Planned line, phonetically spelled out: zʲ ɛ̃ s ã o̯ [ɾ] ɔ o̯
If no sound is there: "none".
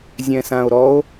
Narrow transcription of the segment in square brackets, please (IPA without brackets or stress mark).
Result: ɾ